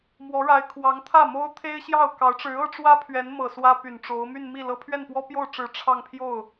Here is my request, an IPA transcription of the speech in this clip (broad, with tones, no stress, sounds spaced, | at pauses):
m w ɔ˧˥ ɻ a˧˥ ɪ̯ kʰ w ɑ˧˥ ŋ t̪ʰ ä˥˩ m o˥ ʊ̯ t̪ʰ e˥ ɪ̯ ɕ j ɑ˥˩ ʊ̯ k ɑ˧˥ ʊ̯ ʈ͡ʂ ɻ̩˧˥ ɤ˥ ʈ͡ʂ w ä˥ pʰ ɥ ɛ˧˥ n m ɤ˨˩ s w ä˥ p y˨˩ n ʈ͡ʂ o˧˥ ʊ̯ m y˥˧ n m i˥˩ l ɤ˥ pʰ ɥ ɛ˥˩ n p w ɔ˥ p j o˥˩ ʊ̯ ʈ͡ʂ ɻ̩˨˩ ʈ͡ʂʰ ɑ˥˧ ŋ pʰ j o˥˩ ʊ̯